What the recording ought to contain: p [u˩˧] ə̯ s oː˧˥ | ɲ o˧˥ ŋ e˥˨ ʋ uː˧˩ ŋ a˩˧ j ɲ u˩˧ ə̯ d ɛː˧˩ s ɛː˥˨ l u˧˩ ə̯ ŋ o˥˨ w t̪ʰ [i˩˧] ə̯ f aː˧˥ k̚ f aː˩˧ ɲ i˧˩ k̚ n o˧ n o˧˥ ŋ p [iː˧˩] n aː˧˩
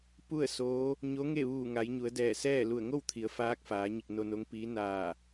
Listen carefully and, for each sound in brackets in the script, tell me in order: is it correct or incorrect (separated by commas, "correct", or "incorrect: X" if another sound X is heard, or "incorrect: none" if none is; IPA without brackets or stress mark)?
incorrect: u˥˨, correct, incorrect: iː˧˥